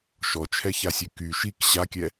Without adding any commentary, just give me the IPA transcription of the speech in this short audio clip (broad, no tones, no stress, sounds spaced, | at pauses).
ʃ ɔ t͡ʃʰ ɛ ç a sʲ ø k y ʃ i k ɕ a kʲ ɛ